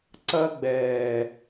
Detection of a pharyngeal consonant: absent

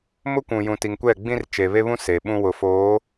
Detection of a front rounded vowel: absent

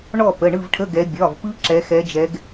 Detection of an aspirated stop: present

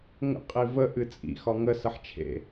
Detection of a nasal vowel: absent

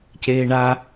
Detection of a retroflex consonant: present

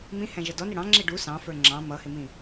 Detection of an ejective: absent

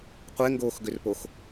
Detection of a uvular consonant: present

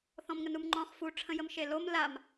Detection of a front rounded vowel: absent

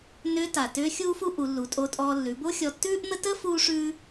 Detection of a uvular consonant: absent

